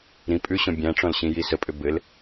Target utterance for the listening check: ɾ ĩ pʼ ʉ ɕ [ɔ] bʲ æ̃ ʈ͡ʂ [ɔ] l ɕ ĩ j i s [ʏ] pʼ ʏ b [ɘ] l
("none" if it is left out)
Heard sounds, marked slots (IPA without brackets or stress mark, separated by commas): ɔ̃, ɔ̃, ə, ɘ